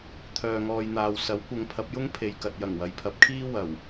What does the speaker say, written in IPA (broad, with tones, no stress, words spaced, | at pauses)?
t̪ʰœː˨ŋɔː˨jn̪aː˨w sɐ˨˥wkʷɐ˨˧ŋ pʰɐ˨˥p̚jʊ˥ŋ pʰe˨jkɐ˨t̚jɐ˨˩ŋ wɐ˨jpʰɐ˨˥p̚kʰiː˥ wɐ˨˩w